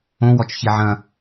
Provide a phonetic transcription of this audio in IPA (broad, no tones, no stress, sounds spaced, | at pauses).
õ w ɔ t͡ʃ ç i ʕ ɐ̃